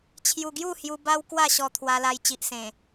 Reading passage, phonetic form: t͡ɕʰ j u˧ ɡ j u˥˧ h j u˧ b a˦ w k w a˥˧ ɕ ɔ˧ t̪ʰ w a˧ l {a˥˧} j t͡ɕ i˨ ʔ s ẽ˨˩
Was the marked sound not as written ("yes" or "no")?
yes